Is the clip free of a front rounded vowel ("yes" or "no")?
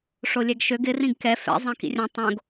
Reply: no